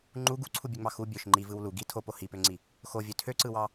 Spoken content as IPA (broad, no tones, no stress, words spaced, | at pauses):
ŋ͡ǃu ɡuǀʰubʲøŋ͡mɑ xu bʲøʃ ŋ͡ǃivɯw lu ɡi tʰopo hipøŋ͡ǀi | xovʲø tʰøǀɯwɑ